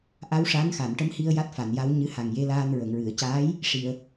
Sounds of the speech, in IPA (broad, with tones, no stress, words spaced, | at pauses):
ʔa˧˥wʂa˧˥n xa˨˩˨nʈə˧˥mhi˧ə̯ ja˦˥t̚fa˨˩˨nja˧˥w ɲɨ˧˥ha˨˩ŋ je˧˥laː˧n ɹə˨˩˨ŋɹɨ˨˩˨ə̯caː˧˥j | ʂi˨˩˨ə̯